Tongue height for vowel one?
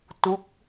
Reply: high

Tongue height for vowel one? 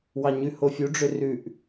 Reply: low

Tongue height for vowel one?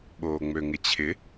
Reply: mid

